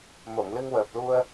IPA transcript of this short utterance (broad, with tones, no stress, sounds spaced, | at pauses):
m o˨˩˨ ŋ l ɨ˧ ŋ w əː˨˩ p̚ l u˧ ə̯